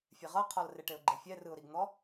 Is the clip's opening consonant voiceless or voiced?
voiceless